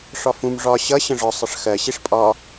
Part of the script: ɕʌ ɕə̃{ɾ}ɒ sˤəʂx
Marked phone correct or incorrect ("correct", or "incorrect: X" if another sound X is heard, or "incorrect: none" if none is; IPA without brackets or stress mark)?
incorrect: ʐ